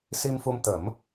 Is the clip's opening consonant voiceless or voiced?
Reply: voiceless